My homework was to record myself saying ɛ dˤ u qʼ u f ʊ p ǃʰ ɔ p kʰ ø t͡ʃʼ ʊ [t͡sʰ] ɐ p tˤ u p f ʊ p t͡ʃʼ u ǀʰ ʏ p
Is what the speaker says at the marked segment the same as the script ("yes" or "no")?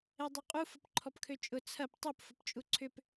yes